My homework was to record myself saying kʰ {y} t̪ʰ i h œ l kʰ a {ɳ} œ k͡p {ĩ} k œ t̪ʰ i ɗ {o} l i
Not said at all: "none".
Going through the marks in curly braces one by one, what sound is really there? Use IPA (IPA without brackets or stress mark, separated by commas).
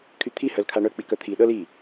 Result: y, ɳ, i, ɤ